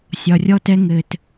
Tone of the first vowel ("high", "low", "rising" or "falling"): low